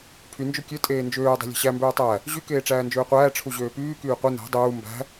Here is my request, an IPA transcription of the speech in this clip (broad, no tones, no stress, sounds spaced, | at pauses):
pʰ y n d͡ʒ ø kʲ ø tʼ eː n d͡ʒ øː dˤ e̤ lʲ e̤ ɕ æ m b øː tˤ æ | ʑ y k eː ʈ͡ʂ æː n d͡ʒ øː qʷ æː ʈ͡ʂʰ u ʑ øː p yː k yː qʷ ɯ n æ̤ dˤ uː m b æ̤